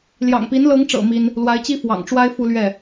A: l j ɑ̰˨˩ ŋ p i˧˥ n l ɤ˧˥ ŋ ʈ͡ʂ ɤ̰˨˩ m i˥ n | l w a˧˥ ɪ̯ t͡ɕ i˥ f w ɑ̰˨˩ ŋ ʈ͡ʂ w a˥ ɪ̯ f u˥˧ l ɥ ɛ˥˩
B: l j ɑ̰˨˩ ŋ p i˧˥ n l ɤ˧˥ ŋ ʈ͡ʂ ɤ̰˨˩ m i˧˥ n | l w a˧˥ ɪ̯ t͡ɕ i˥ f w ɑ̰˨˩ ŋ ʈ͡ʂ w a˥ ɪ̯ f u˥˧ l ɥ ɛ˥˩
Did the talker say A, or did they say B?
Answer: A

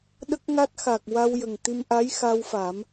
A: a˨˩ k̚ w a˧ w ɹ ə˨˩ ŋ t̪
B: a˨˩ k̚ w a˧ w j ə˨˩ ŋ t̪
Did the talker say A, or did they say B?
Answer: B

